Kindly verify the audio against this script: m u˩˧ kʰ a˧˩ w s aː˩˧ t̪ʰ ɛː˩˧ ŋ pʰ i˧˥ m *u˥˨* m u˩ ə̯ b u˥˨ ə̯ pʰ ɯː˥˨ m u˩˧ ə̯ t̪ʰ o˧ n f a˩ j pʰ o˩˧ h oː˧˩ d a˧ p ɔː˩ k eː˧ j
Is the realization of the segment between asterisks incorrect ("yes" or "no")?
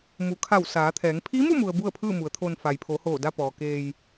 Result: no